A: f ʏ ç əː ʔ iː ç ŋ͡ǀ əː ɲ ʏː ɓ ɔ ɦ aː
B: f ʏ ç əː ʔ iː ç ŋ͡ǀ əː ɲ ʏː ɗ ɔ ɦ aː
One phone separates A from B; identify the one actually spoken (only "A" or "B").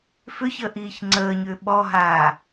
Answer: A